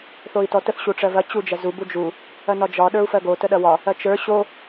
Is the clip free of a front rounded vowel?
yes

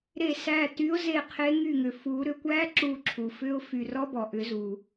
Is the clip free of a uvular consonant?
no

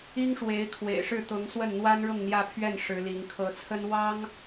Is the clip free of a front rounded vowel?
yes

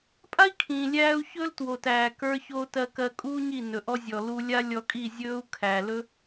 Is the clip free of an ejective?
no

